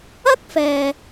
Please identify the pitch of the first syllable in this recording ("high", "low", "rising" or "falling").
high